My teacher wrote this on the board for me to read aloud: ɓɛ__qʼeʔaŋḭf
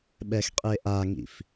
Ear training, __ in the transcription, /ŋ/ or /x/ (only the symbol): x